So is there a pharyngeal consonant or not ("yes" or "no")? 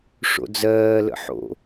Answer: yes